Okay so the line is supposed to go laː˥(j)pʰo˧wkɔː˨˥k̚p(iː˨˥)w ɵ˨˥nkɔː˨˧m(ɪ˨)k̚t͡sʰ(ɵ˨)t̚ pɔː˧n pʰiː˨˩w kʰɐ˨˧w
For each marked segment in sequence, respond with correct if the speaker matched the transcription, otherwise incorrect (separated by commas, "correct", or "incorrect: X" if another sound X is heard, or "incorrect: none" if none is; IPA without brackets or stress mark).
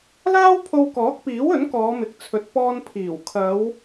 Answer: incorrect: w, correct, correct, correct